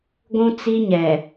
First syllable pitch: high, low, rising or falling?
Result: high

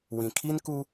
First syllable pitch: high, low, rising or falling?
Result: low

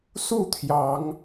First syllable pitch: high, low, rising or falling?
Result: falling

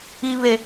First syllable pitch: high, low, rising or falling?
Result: high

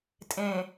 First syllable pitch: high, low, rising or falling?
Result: low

